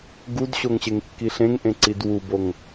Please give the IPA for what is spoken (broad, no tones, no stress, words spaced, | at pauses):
ɡudɕoŋɕeŋkːi ɬẽŋʔẽǀid wuboŋ